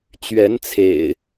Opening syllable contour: rising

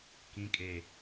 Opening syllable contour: low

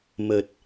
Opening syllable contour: low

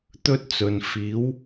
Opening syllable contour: high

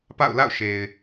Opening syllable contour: falling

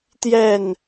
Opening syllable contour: falling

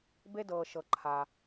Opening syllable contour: high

